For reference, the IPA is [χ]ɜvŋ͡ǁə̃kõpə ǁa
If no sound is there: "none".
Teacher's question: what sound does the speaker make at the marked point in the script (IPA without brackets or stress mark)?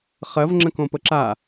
χ